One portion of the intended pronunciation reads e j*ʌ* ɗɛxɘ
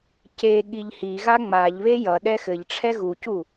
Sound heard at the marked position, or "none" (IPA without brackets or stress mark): ʌ